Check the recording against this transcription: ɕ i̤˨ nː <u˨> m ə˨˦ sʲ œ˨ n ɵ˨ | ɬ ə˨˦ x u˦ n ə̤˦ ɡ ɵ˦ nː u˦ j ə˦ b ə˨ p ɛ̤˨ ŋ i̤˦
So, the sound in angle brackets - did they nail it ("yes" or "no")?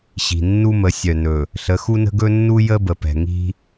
no